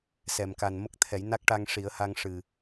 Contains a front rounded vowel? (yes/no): no